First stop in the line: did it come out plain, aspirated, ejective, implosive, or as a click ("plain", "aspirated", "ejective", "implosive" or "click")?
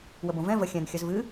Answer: plain